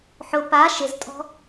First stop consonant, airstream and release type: plain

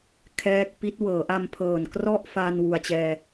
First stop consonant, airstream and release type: aspirated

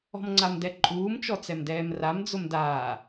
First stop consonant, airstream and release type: click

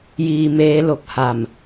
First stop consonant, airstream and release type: plain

